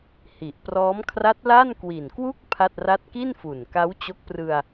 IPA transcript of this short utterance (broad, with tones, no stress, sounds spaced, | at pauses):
h i˨˩ ʔ p r ɔː˦˥ m kʰ r a˦˥ t̚ l a˥˩ n k w i˨˩ n k w u˥˩ k̚ pʰ a˥˩ t̚ r a˥˩ t̚ k i˥˩ n f u˨˩ n k a˦˥ w t͡ɕ o˦˥ k̚ p r ɯ˧ a̯